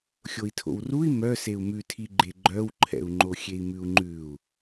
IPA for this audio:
xʲoi̯tʰo̰wrui̯ mœ seu̯mʉtʰi ɡ͡ǃeɡ͡ǃœwǃʰɛ̰u̯ŋ͡ǃo xʲei̯mʉu̯ŋ͡ǃʉu̯

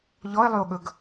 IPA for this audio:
ʎɔe̯lˠyo̯ɠɵɡ

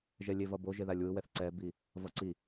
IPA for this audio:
ʒɛlʲevʌbo ʒeðalʲwɯwɛθ ǀɛbi | vʌǀi

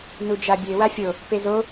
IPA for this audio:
nud͡ʒabʲe wafʲo | pezo

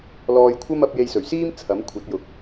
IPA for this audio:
lɔː˧jkʷʰɐ˥mɐ˨˥p̚ je˧jsɵ˨˩ɥ siː˥m t͡sʰɐ˨˥m kʷʰɐ˨˥t̚jʊ˨k̚

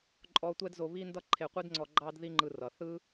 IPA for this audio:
ǃʼɔ˦ tʷɛ˦dzo˧βi˦ndʌ˦ ǃʰe˧qʷi˦dŋ͡ǀɔ˧ ɡ͡ǃɑ˦dði˦ŋ͡ǃɯ˧rʌ˨ θɯ˦

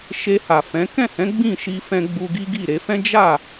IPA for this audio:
ʃe˧ha˨fɛ̃˨˦ kɛ̃˦˨hɛ̃˨˦ ɡ͡bĩ˦˨ʃi˧fɛ̃˧ ɡ͡bu˧ɡi˦ɡi˦˨ ɾe˧fɛ̃˦ d͡ʒa˦˨

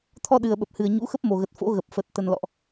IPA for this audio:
t̪ʰɔ˧ɗɨ˨˩ə̯ɓə˨˩p̚hɨ˨˩ə̯ ɲṵ˧˥xə˦˥p̚ mo˨˩ɣə˨˩t̚ fo̰˧˥ɣə˨˩p̚fə˨˩t̚ t̪ə˨˩nlɔ̰˧˨ʔ

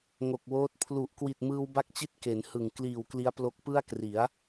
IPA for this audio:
ŋo˨˩k̚woː˦˥t̚ pʰlu˨˩ʔ kwi˨˩t̚mɯː˧wba˦˥k̚t͡ɕi˦˥t̚ ke˩˦nhɯ˨˩ŋ kliː˨˩wkli˦˥a̯plo˦˥k̚ pɯ˥˩a̯kri˩˦a̯

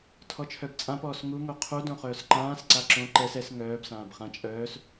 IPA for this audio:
tʰɔt͡ʃʰœbt͡sʼãpɔːs ŋuŋo qʰudõ χœːsǃãːs ǀaǁõ ǃɛs ɛs ŋœːb sãːbχã t͡ʃʼœːs

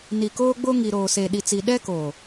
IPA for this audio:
ni˨koː˦ɡ͡bo˦ ŋi˨ɾoː˨ se˨ɗi˨t͡si˨ ɗɛ˦koː˨

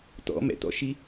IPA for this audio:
t̪ɔ̰mɛ̰t̪ɔ̰ʃi

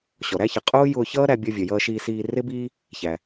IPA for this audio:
ɕɔ˩ɾæ˥çʌ˩ qʼʊː˥ jʊː˧çʌː˥ ɾæ˧bʲɔ˧vʲʌ˩ jʌː˧ʃiː˧siː˧ rɪ˥biː˥ | çæ˩

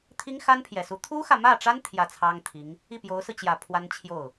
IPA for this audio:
t̪ʰi˥ŋxa˥npʰjɛ˨˩su˧˥ t̪ʰu˥xä˨mä˥˩ʈ͡ʂa˥n t̪ʰjä˥˩t͡sʰɑ˥ŋt̪ʰi˧˥ŋ | i˥˩pjo˧˥ʊ̯sɹ̩˧t͡ɕjä˨˩ pʰwa˥nt͡ɕʰjo˥˩ʊ̯

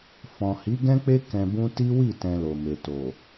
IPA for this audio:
fɔ̃˨hi˨˦ɡɛ̃˦k͡pe˦ kɛ̃˧bũ˦ ti˦wi˦˨ tɛ̃˧lo˨me˨ to˨

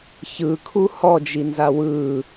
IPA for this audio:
çɯkʰu hɔd͡ʒinza wɯ

